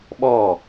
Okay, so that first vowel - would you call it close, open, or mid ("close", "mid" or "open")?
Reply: mid